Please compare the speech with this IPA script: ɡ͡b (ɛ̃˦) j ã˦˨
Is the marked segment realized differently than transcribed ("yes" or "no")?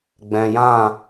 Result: yes